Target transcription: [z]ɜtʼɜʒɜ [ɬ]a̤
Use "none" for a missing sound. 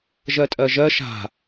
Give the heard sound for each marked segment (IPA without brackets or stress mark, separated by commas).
ʒ, ʃ